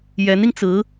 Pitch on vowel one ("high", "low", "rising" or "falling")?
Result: rising